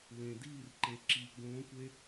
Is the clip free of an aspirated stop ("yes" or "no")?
yes